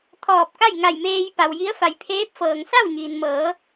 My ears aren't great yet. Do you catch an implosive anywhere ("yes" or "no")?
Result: no